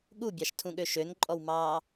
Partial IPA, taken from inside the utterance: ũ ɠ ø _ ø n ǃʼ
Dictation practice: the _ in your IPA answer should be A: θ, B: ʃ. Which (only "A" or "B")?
B